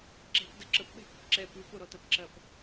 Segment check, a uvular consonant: absent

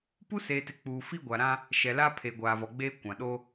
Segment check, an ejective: absent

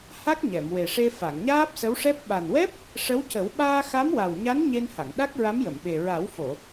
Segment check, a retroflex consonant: present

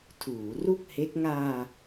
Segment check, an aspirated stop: present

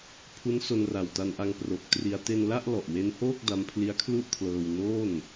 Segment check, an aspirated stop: present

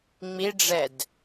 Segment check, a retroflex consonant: present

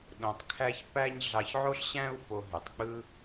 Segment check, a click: absent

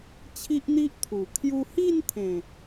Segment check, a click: absent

